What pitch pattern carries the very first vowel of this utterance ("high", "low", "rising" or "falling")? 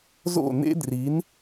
falling